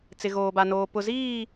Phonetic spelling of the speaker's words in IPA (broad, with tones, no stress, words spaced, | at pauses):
t͡sɪ˨ɣoː˨ba˨noː˨ pʊ˨ziː˦˨